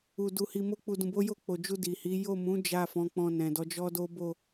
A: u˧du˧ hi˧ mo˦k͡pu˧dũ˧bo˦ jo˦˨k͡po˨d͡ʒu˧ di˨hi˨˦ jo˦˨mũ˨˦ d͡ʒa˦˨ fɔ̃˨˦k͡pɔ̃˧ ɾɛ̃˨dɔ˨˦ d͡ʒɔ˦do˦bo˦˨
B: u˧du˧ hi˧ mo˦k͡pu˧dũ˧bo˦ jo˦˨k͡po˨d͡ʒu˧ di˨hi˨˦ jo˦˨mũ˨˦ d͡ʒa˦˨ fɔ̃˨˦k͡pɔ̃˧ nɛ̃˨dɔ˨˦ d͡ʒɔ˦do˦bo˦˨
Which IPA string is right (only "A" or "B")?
B